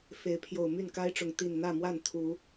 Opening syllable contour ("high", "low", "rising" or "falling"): rising